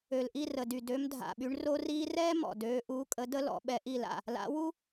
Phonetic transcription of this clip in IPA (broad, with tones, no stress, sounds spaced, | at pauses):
ø˨˩ l ʔ i˦˨ r ə˨˩ d y˨˩ d ø˨˦ m dʱ a̰˨˩ ɓ y˨˦ ɳ r o˥ r iː˥ r ɛː˥ m ɔ̰˨˩ d øː˨˦ ʔ uː˨˦ kʼ ə˨˦ d ə˥ l ɔ̰˨˦ ɓ ɛ˨˦ ʔ i˦˨ l a̰˦˨ | l a̰˨˦ w u˥